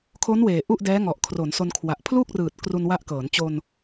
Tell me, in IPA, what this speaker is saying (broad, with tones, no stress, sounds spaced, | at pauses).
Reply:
kʰ o˦˥ n w eː˨˩ ʔ u˥˩ ʔ d ɛː˦˥ ŋ ɔ˨˩ ʔ kʰ r o˩˦ n s o˧ n kʰ w a˨˩ ʔ pʰ l u˥˩ k̚ r ɯː˨˩ t̚ k r u˧ n w a˦˥ ʔ k ɤː˩˦ n t͡ɕ o˧ n